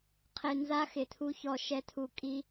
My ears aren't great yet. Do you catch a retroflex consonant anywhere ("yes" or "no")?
no